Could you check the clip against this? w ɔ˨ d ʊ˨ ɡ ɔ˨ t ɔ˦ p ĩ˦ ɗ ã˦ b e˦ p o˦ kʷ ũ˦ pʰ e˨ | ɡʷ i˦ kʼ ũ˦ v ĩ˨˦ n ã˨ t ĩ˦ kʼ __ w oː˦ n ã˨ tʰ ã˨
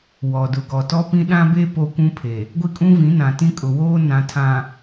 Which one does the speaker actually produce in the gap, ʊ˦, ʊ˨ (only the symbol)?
ʊ˨